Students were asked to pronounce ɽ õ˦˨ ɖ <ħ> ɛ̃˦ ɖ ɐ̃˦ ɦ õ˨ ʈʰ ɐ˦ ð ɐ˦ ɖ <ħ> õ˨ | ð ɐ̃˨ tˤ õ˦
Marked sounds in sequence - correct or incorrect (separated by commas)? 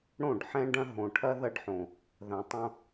correct, correct